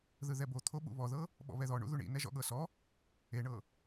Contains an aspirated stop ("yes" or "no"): yes